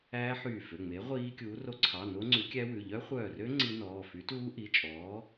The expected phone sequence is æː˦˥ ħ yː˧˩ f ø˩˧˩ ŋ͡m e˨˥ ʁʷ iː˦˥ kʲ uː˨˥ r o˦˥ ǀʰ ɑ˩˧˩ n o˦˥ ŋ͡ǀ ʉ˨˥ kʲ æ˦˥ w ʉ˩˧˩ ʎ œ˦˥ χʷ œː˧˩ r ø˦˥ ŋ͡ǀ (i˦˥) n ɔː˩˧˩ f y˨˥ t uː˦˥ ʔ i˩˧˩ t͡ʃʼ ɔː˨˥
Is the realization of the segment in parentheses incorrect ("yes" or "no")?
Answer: no